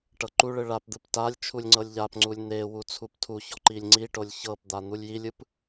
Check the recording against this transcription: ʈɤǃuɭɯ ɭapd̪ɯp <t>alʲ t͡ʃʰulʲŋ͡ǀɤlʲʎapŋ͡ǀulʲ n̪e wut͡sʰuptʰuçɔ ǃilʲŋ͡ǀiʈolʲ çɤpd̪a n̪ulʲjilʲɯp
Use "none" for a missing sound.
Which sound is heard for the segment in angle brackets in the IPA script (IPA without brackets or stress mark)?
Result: t